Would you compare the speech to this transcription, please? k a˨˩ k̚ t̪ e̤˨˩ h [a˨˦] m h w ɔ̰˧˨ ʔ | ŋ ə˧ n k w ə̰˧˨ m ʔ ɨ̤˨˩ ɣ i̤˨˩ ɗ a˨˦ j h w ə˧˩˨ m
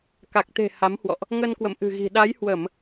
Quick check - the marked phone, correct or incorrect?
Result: correct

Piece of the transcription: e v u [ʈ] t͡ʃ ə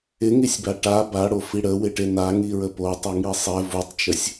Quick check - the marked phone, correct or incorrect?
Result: incorrect: tˤ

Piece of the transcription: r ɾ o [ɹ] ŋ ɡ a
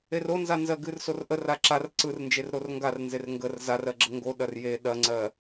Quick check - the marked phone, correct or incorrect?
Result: incorrect: r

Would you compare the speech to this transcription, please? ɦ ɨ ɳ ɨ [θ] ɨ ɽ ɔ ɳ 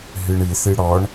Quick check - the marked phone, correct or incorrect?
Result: correct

